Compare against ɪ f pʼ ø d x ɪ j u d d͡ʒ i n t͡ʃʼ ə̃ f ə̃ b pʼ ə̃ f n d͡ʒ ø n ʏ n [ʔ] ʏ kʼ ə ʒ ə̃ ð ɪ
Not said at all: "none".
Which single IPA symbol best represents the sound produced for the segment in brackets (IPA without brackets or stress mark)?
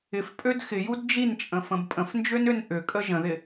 ʔ